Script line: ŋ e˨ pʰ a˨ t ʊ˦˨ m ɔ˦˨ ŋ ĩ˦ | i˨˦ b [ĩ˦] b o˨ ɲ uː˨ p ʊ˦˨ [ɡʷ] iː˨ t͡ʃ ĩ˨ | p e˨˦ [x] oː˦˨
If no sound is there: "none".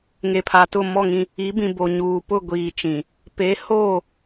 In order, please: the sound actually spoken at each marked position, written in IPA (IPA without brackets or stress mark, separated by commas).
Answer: ĩ˨, ɡʷ, h